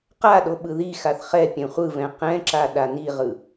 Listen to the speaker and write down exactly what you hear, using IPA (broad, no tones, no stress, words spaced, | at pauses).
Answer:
qaɗo ɓɯðixaθ χɛ pʲɛ̃χʷɯvɛ̃ qɛ̃ǁa ɗaniʁɯ